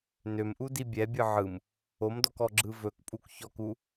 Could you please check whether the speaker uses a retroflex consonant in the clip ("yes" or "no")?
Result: no